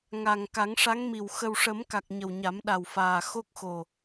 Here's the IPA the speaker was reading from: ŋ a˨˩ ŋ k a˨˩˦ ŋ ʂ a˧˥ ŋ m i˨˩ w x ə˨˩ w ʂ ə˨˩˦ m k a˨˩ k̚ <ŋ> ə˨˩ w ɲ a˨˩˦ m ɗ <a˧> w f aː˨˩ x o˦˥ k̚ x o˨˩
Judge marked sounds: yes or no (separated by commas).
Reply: no, no